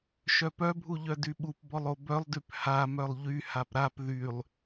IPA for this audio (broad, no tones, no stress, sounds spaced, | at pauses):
ʃ œ p œ bʱ u ʎ œ d y ɓ u p b ɔ lˠ o b œ lˠ d y p h a m œ lˠ ʎ y h a p ɾ a p ð y lˠ